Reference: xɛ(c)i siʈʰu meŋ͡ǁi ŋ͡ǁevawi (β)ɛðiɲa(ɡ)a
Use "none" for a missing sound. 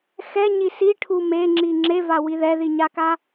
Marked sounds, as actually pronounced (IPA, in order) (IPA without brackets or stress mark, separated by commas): ɲ, ð, k